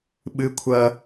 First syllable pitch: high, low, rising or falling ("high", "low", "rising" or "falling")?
high